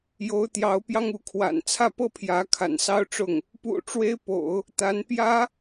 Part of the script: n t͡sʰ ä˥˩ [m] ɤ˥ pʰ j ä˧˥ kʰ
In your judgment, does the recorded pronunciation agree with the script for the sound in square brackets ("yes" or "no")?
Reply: no